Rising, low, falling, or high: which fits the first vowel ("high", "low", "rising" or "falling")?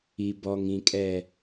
low